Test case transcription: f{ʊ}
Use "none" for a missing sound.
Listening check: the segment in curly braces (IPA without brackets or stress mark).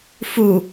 u